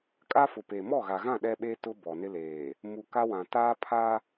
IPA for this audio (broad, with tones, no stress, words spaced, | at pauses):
kʼa˦fʊ˨ pe˨ mɔ˦˨ɣa˨ɣã˦˨ ɗɛ˦ɓe˦ tʊ˦bɔ˨nɪ˦leː˨ | mu˨ka˦wã˨ taː˦pʰa˦